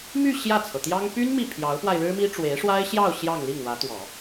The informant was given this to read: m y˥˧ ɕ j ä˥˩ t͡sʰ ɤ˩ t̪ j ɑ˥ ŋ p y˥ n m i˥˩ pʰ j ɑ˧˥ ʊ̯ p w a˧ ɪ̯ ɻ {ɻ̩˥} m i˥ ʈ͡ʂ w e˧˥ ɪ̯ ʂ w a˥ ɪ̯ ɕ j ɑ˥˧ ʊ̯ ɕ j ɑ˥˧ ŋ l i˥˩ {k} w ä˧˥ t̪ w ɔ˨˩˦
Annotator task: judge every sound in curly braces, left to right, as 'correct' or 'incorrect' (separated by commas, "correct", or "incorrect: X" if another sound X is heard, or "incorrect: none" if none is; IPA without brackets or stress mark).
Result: correct, incorrect: ŋ